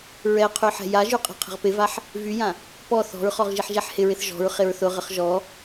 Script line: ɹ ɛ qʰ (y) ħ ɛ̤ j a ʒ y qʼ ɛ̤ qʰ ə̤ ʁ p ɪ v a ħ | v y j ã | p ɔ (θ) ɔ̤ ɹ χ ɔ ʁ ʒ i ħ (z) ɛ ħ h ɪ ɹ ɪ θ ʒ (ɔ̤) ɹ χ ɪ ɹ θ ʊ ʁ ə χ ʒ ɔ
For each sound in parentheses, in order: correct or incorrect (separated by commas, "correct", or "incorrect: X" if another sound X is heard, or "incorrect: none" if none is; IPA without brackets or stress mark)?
correct, correct, incorrect: ʒ, correct